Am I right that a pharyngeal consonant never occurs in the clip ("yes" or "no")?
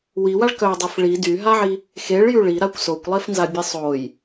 no